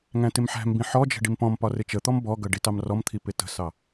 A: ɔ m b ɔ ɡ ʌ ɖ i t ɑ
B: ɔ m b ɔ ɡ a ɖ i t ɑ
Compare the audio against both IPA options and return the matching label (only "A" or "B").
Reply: A